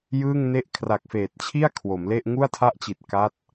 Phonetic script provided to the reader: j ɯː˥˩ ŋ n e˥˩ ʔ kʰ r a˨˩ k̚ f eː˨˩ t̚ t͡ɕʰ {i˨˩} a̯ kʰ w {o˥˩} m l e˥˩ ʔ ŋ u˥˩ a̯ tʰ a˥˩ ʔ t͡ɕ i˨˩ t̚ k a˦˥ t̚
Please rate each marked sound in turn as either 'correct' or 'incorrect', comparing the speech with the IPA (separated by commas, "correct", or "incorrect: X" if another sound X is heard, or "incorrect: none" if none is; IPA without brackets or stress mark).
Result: incorrect: i˥˩, incorrect: o˩˦